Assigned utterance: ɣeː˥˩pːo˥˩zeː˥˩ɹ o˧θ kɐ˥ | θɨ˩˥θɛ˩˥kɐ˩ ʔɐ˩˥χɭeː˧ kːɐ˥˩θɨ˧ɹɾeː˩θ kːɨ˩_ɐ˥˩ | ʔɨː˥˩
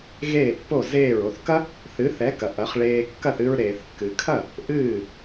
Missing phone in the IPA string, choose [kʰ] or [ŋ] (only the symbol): kʰ